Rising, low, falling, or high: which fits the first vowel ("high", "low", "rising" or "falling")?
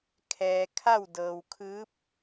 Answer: low